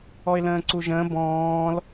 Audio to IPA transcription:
ɔ ɪ̯ l ə̃ː ǀ u ʒ ə̃ː b ɔ̃ː l

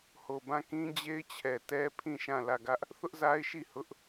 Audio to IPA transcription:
h o˨ b ã˦˨ k ĩ˦ d͡ʑ e˦ ɪ̯ t͡ɕʰ ɛ˨ t ɛ˦ pʰ ĩ˦˨ ʃ ã˦˨ l ä˦˨ ɡ ä˦ ʔ | θ ʊ˦ ʔ z a˦ ɪ̯ ʃ i˦˨ h ʊ˦ ʔ

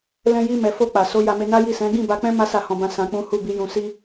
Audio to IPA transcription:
l ɛ̃˧ j i˧ m ɛ˨ f o˧ k͡p a˨ s o˨˦ j a˧ m e˧ n a˦ j i˦˨ s ɛ̃˨˦ ɡ ĩ˦˨ b a˧ k͡p ɛ̃˦ m a˦ s a˦˨ h ɔ̃˧ b ã˧ s ã˧ k͡p ũ˦ h u˦˨ b i˨˦ j ũ˧ s i˦

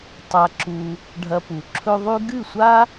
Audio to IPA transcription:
tˤ a˧ ǁ u˧ | ɖʱ ɐ˧ p u˨ ǁʰ ɵ˦ ðˤ ʉ˦ ɡ ɨ˦˨ sʷ a˦

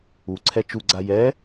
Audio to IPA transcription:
u ǀʰ ɛ t͡ʃ u ɡ͡ǀ a j ɛ

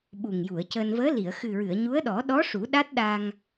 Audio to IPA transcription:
ɓ u˨˩ ŋ j u˨˩˨ ə̯ c əː˧ n v əː˧˥ l i˨˩˨ ə̯ x ɨ˨˩ ɹ ɨ˨˩˨ ə̯ ɲ u˧˥ ə̯ ɗ ɔ˨˩˦ ɗ ɔ˧˥ ʂ u˨˩˦ ɗ a˦˥ t̚ ɗ a˧ ŋ

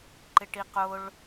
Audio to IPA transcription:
ǃ ɪ ʈ i q ʊ ɭ

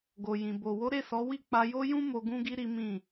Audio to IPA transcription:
ɡ o˨ j ĩ˨ b o˨ w o˨˦ ɾ e˦˨ s ɔ˨˦ w i˦˨ k͡p a˧ j o˦ j ũ˦ m o˧ ɡ ũ˧ ɡ i˧ ɾ i˦ m ĩ˦˨

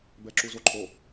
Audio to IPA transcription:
b ɛ ǁ u z o ǃʰ o

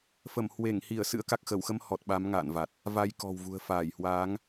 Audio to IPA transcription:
f ə˧˩ m h w e˧˩ ŋ h i˧˩ ə̯ s ɨ̰˧˥ ə̯ k a˨˩ k̚ x ə˧˩ w x ə˧ m h ɔ˨˩ t̚ ɓ a˨˦ m ŋ a̰ː˧˨ n v a˨˩ t̚ | v a˧ j k ɔ̤˨˩ w v ṳ˨˩ ə̯ f aː˧˩ j h w aː˨˦ ŋ

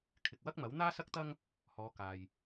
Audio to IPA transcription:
kʰ ɪ˨ k̚ w ɐ˥ k̚ m ɐ˨˥ w n̪ aː˥ s ɐ˥ k̚ t̪ ɐ˥ ŋ | h ɔː˨˧ k aː˨ j

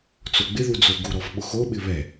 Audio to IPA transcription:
t͡s o ɡ͡b ɪ ð u d͡z o ɡ u ɾ ɔ v ɓ ʊ x o ɓ ɪ β ɛ

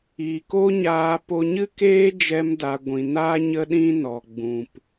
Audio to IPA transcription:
iː˨ k o˦ ɲ aː˧ p o˧ ɲ ɨ˦ k eː˦ d͡ʒ ɛ˦ m d a˧ ɡʷ ĩ˨ n a˦ ɲ ə˦ ɗ ĩ˦ n ɔ˨ ɡ͡b ũ˨ p

